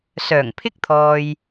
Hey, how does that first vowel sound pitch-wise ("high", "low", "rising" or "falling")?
low